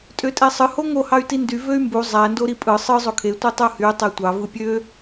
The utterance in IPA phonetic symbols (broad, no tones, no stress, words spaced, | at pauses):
tʼøtʼesˤɯ hoŋo hɑy̯tindy vøy̯mbu zˤæ ndoɾipʼɯ sˤɯ zˤokʰe tʷitˤuhy tˤetʷɑ vɯpʲø